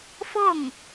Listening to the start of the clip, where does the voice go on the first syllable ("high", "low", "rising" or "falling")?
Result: falling